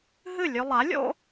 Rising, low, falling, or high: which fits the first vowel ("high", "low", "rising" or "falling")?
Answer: falling